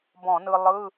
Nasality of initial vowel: nasal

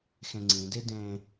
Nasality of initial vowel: nasal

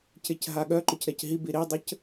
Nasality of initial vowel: oral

